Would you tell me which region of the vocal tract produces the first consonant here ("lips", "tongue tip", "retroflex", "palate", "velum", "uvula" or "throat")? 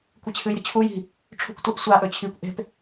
velum